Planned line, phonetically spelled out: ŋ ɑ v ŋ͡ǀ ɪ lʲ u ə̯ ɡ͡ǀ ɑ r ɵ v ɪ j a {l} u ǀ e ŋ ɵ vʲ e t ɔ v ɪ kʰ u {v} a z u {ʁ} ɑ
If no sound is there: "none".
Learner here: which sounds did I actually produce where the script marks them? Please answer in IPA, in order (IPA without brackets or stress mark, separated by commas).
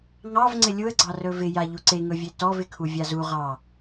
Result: ʎ, vʲ, ʁ